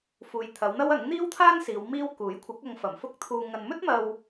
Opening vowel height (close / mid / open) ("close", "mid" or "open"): close